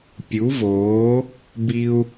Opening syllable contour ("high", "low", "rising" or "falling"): rising